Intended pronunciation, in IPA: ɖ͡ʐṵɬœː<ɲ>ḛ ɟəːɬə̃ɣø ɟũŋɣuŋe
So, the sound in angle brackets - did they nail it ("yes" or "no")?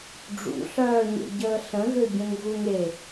yes